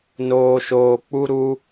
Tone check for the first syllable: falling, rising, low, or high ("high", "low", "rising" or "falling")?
low